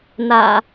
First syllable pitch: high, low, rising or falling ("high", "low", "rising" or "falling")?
low